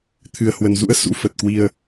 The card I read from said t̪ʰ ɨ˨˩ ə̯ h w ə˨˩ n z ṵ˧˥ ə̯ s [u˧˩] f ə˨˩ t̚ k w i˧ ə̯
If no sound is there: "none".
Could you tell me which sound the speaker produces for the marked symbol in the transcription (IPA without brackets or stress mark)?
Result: ṵ˧˥